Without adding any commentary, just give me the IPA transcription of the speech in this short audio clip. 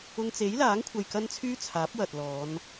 ʊ˧ŋt͡se˨˥jlaː˨˥ŋkʷʰɐ˨j kɐ˥nt͡sʰyː˥t͡sʰaː˨˥p̚ wɐ˨t̚lɔː˨˧n

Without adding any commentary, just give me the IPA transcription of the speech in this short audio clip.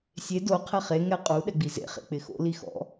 sʲe do qʰɛχe ŋɛqʼu ɗɛɡ͡bizḛ χḛk͡pɪxo̰ lixɔ̰

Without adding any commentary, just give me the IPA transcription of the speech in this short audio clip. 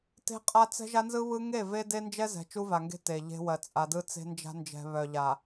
te̤˦qʼa˦t͡sɛ̤˦ʒa˦ nzɯ˦βɯ˦ ŋe˦˨ve˦ de˦nd͡ʒɛ˦zɛ̤˨ t͡ʃu˦va˨ŋɡe̤˦ te˨ʎe̤˦wɜ˨ t͡sʼa˨dɯ˦t͡se̤˦nd͡ʒa̤˦ nd͡ʒɛ̤˨ βœ˨ʎa˨

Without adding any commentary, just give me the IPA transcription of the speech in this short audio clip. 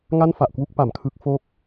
ŋa˥˩nfa˨˩ʔkwu˥˩k̚ pa˩˦mkʰɯ˦˥k̚fo˥˩k̚

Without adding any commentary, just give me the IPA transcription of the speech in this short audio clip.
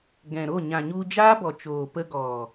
ɡɛ̃˨ɾo˦˨ ɲã˨ɲu˧d͡ʒaː˦bɔ˨ t͡ʃoː˨pə˧ɡɔ˨

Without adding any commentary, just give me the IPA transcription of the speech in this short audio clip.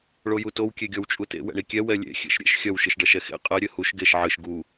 ɭojutow kʲeɡʲɔwt͡ʃʼutḛ wɛ̰ɳikʲɛ wɛlʲḛ xʲḛʃɾʲḛʃ xʲɐw ʃɨʃɖɐʃɛxḛ qʼɛ ɾʲɘhuʃ ɡeʃ ʕɨʃ ɡu

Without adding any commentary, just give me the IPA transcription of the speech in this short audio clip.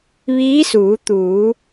ʋiː˧˥suː˩˧ t̪uː˩˧

